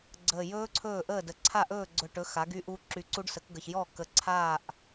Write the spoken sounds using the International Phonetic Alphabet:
ɡ͡ǀəː˨˩jɵː˦˥ ǀʰɵː˥˩ʔəː˥˩də˨˩ ǀʰa˥˩ʔɵː˥˩ɡ͡ǀɵ˨˩ʈɵ˩˥ xa˩˥ɡy˦˥ʔu˦˥ ǁy˨˩ǀu˦˥ɖsə˩˥kɡə˨˩ç jɔ˥˩ kə˨˩ǀʰaː˥˩ʔ

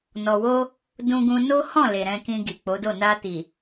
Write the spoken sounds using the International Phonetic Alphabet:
nɔ˨wo˧ | dũ˧ɡũ˧ no˦hɔ̃˦˨ le˨ɾɛ̃˧ kĩ˧ ɡi˨k͡po˨˦do˦˨ na˧ti˨

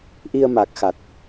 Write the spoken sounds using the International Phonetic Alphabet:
ʔi˧ə̯ma˨˩k̚xa˨˩t̚

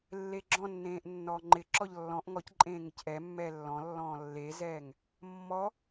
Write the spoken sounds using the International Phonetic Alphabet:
lːeɡ͡ǁɔ̃nːẽːʔ nːɔːŋ͡ǃɪǁɔʎ lːɔ̃ʔ ŋɔc ǃʼẽːŋɪcʔɛmːɛː lːɔ̃lːɔ̃ː lːezɛːŋ | mːɔ

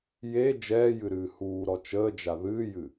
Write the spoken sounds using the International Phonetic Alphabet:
je d͡ʒɛːjɨɾɨː huːɾɔ t͡ʃəːd͡ʒa ðɨːjɨ

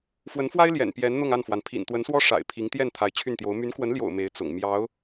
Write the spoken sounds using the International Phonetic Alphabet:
fwə˧˥nfwa˥ɪ̯ ljɛ̰˨˩n pjɛ˧˥nn̪ʊ˥˧ŋa˥˩nfwa˩n pʰḭ˨˩nt̪wə˧˥nswɔ˥ ʂa̰˨˩ɪ̯pʰi˧˥ŋ t̪jɛ˥˩n t̪ʰa˧˥ɪ̯t͡ɕʰy˥˩nt̪jo˧˥ʊ̯ my˧˥nkwə˧˥nljo̰˨˩ʊ̯ me˧˥ɪ̯ t͡sʊ̰˨˩ŋ mjɑ˧˥ʊ̯

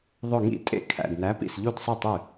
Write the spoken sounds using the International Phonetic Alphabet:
ðˤɵ˧˩ŋḭ˥˩tʼḛ˥˩ kʰæ̰˧˩dnæ˨˥pḭ˧˩s ʎu˥˩dsˤœ˥˩tˤy˥˩

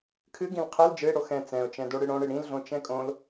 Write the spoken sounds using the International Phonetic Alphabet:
kʰɨɡĩl qʰɛl d͡ʒɨɪ̯ ɽoxɛ̃ t͡sɛ̃ʊ̯t͡ʃɛ̃doɽɨ ɽõɽɨ ɽĩlɮõ t͡ʃɛ̃kʼõl

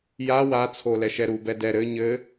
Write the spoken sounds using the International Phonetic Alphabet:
ja wat͡sʰo lɛʃɛɾu bɛdɛ ɾɘ ɲɘ

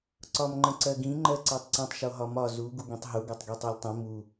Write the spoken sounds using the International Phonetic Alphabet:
ǀɒmŋ͡ǃə̃ǀɜɡĩ ŋ͡ǃɜǀɜtˤǀə̃tˤ ʃoɦɒmɒ zu ɡuɡĩtˤɦu ɡɒtˤɡitˤɤlʲtˤĩ mu

